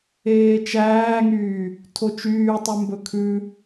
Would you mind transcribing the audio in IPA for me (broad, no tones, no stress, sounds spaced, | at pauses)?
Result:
eː t͡ʃ æː ŋ yː | tʰ o t͡ʃ yː tˤ ʉ m b ɵ kʰ ʉ